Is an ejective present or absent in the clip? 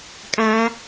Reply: present